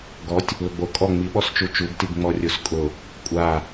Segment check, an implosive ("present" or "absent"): present